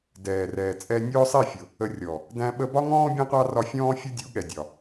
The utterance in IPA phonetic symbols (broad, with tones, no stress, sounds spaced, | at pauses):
d ɛː˨ r ɛː˨ t͡sʼ ɛ˧ nʲ ʊː˦ sˤ i˦˨ fʲ ʊ˨ | ə˧ rʲ ɔ˨ | d æ̃˧ ɓ ə˧ b ɒ˦ ŋ ɔ̃ː˦ bʲ ɛ̃˦ qʷ ɑ˦ r ɒ˧ fʲ ɔ̃ː˦ fʲ ʌ˦ dʲ u˨˦ ɠ ɛ˨ dʲ ɒ˨